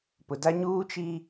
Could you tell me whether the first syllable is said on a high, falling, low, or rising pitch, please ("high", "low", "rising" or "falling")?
low